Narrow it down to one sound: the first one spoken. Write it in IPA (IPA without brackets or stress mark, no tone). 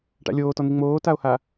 ʈ